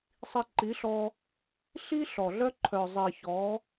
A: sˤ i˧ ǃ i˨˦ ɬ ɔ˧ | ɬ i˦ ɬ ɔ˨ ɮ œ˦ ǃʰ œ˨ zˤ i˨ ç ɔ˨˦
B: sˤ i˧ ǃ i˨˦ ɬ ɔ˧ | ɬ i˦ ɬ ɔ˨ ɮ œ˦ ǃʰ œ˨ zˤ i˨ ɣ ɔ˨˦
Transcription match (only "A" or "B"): A